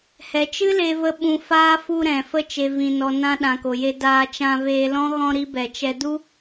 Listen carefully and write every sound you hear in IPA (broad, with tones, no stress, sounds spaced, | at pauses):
h ɛ˨ t͡ʃ ɨ˦ l e˧ v ə˧ ɓ ũ˧ f aː˦ f u˧ ɾ ɛ̃˨ f ə˧ t͡ʃ e˨ v ĩ˨ n ɔ˨ n ã˧ ɗ ã˨ k o˨ j e˧ d aː˧ t͡ʃ ã˧ v eː˧ l ɔ̃˦ ɣ ɔ̃˧ ɾ i˦ b ɛ˨ t͡ʃ ɛ˧ d u˦